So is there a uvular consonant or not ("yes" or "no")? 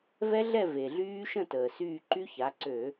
no